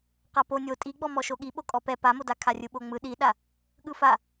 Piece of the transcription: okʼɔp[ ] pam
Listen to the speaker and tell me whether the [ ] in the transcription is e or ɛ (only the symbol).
ɛ